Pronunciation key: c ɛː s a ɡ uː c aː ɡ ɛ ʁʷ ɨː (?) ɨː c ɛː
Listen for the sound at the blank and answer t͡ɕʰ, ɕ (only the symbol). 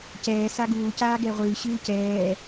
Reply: ɕ